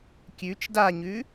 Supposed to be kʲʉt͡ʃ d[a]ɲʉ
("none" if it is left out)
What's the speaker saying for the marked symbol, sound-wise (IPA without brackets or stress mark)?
a